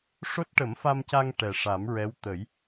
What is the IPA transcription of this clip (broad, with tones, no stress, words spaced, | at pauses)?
ʂo˦˥t̚ʈə˨˩˦mfa˧mca˧ŋ ʈɛ˨˩ʂa˨˩˦mɹɛ˧˥w t̪ə˨˩˦j